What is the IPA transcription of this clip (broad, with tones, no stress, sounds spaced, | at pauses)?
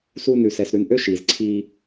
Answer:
s uː˦ n ʉ˨ s ɛ˨ s ɾ ʉ˨ n ʔ ø˦ ʃ iː˨ z ǀʰ iː˦